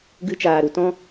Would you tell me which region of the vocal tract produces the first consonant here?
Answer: velum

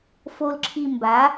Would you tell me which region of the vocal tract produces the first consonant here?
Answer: lips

